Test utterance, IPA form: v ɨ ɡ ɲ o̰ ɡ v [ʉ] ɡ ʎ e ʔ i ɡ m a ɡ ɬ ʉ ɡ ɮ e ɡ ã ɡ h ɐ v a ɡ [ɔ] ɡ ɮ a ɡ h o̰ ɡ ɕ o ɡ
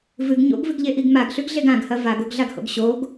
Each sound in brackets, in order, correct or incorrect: incorrect: ɨ, incorrect: o

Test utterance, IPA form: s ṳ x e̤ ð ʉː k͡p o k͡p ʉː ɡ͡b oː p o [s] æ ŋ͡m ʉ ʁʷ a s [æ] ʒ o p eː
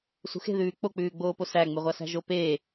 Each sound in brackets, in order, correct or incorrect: correct, incorrect: æ̤

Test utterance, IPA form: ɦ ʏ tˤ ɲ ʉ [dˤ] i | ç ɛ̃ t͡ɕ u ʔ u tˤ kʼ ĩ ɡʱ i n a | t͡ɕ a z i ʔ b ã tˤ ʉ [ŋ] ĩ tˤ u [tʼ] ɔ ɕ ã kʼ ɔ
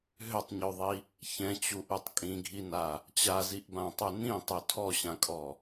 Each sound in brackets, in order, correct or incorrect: incorrect: ðˤ, incorrect: n, incorrect: tʰ

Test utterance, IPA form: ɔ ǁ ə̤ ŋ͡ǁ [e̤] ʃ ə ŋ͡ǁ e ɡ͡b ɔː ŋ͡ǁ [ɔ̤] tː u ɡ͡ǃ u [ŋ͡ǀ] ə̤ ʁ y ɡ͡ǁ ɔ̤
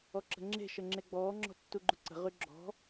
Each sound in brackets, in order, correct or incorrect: correct, correct, incorrect: ǀ

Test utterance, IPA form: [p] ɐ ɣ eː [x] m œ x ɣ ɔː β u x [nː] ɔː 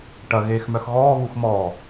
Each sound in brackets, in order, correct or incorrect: incorrect: ʈ, correct, incorrect: m

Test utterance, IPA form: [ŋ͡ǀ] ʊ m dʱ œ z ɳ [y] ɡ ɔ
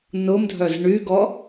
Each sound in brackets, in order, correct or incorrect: incorrect: n, correct

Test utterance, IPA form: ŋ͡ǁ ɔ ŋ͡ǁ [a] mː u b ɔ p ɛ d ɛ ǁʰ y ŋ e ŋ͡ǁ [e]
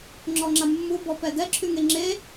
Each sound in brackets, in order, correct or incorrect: correct, correct

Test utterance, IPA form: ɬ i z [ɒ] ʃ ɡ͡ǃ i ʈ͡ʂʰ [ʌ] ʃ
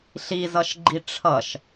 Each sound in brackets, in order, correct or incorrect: incorrect: ʌ, correct

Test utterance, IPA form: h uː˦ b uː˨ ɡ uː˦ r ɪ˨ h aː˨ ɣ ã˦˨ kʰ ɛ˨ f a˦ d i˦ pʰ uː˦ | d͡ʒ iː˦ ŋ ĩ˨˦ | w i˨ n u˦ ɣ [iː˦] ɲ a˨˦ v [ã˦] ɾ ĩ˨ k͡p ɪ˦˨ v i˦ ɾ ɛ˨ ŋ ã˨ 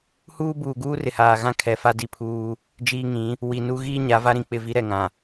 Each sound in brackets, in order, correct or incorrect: correct, incorrect: a˦

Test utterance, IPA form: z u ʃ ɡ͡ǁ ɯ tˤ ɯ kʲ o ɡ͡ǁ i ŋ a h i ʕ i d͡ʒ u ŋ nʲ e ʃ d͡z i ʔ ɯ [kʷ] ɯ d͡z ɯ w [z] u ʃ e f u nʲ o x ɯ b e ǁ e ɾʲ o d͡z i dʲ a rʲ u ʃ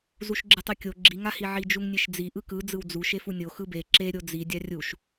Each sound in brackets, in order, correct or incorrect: incorrect: k, incorrect: d͡z

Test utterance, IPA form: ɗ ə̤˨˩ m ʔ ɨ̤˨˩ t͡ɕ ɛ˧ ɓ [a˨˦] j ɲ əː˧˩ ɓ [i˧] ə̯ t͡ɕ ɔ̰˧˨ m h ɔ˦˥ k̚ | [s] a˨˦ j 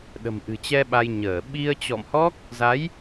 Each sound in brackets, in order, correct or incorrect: incorrect: a˧, correct, incorrect: z

